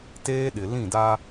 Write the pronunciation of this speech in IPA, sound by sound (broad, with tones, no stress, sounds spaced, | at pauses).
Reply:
t eː˦ ɗ ɪ˨ l ĩ˦˨ d a˦